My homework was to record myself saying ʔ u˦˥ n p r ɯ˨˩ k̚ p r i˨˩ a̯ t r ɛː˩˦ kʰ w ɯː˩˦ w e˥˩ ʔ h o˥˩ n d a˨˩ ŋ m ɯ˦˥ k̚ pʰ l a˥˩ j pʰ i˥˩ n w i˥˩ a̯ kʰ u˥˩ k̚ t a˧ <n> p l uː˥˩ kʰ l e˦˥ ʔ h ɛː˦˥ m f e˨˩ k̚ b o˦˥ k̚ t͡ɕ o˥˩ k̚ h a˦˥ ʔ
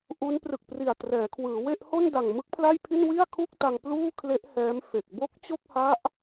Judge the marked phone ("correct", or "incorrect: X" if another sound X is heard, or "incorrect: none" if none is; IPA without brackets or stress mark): incorrect: ŋ